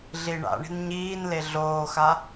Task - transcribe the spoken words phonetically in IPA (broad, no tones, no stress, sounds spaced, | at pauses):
ɮ i ɳ a̰ ɳ i̤ n ɲ iː n l e ɮ oː x a